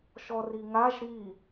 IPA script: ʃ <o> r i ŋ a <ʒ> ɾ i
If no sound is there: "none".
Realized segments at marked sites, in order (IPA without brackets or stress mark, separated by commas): ɔ, ʒ